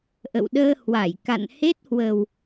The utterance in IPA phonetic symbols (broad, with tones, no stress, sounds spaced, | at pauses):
ʔ ə̰˧˨ w ɗ əː˧ h w a˧˩ j k a̰˧˨ n h e˦˥ t̚ h w ə˨˩ w